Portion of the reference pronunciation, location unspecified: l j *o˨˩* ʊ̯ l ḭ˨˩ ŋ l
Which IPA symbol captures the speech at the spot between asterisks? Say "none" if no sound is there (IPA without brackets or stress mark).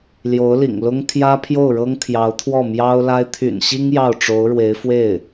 o˧˥